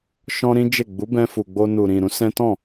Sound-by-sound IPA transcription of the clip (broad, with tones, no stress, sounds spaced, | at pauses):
ʃ ɔ̃˦ ɾ ĩ˦ d͡ʒ e˦˨ ɡ͡b u˨˦ b ɛ̃˧ f u˨ ɡ͡b o˧ n u˨ ɾ ĩ˨ ɾ ũ˨˦ s ɛ̃˦ t ɔ̃˦˨